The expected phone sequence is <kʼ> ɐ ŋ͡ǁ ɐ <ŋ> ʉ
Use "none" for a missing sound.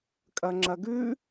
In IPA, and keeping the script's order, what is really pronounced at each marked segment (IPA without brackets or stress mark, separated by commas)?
kʼ, ɡ